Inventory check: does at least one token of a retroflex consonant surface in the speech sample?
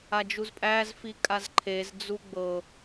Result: no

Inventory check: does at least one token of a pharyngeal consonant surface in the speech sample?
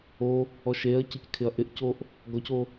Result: no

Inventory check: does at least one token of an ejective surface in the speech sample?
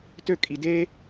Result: yes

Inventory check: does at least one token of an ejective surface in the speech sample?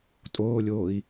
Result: yes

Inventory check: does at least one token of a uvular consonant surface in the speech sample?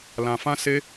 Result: no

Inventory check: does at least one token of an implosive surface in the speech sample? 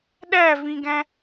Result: yes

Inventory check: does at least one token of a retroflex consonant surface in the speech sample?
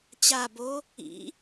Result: no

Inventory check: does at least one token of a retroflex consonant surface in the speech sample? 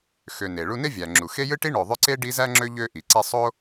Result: yes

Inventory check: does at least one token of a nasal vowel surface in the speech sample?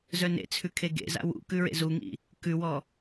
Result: no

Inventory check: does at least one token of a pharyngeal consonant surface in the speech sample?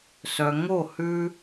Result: no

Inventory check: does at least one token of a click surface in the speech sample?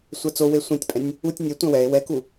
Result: no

